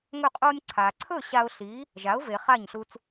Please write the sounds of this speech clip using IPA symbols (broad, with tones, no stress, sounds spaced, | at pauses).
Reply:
ŋ ɵ˥˩ qʼ o˧ nʲ ǀʰ a˩ ǀʰ ɵ˥˩ ɕ a˧ ʊ̯ ɬ i˩˥ | ʒ a˩˥ ʊ̯ v e˩ χ a˥˩ ɲ ɬ u˧ t͡s